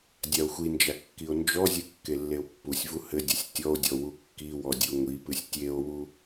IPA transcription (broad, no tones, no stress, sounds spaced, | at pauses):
dʲ a o̯ xʷ i n d͡ʒ a kː i o̯ n d͡ʒ ɔ zʲ ɨ kː e lː e o̯ pː u sʲ v u h ɘ dʲ ɐ sʲ tʲ ɔ o̯ dʲ ɔ w u kː i w ɔ dʲ u ŋʷ i p ɨ sʲ tʲ e o̯ w u